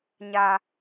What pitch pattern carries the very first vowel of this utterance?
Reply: low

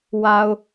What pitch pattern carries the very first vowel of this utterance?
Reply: low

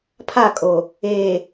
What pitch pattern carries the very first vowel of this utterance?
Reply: falling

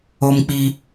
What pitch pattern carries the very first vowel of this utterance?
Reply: high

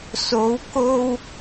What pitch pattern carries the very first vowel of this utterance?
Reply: rising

